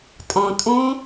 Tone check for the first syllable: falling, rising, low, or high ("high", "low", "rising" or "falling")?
low